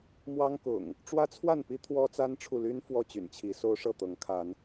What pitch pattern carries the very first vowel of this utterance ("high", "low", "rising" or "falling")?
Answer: high